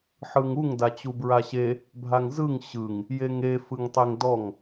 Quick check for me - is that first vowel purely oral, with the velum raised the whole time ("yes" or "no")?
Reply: yes